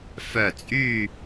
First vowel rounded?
yes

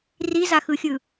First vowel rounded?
no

